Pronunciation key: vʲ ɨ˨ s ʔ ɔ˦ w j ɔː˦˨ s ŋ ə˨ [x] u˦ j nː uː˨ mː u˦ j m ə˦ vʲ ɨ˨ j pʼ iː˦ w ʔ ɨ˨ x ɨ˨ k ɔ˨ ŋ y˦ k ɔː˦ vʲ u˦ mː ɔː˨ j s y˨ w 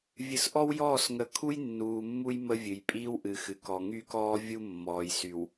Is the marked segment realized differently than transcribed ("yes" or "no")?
yes